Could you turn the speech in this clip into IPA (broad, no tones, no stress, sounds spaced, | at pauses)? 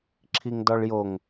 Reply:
ǁʰ i ŋ d ɔ ɭ j o ŋ